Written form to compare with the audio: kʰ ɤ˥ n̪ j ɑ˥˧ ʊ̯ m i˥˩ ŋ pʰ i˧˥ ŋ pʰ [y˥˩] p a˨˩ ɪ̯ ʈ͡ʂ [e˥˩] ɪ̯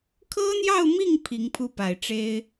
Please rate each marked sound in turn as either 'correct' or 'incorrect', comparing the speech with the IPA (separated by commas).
incorrect, incorrect